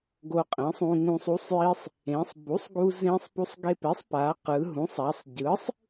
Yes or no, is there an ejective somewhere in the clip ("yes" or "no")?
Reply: yes